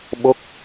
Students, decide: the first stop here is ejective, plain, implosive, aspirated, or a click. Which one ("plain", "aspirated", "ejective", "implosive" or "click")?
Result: implosive